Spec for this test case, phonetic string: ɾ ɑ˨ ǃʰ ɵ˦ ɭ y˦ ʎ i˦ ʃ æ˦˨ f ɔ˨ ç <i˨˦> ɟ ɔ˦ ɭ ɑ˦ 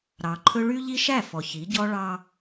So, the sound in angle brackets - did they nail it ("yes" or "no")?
yes